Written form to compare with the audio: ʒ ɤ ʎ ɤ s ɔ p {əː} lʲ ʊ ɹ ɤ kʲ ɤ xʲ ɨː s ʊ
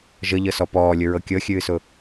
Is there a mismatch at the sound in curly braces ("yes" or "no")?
yes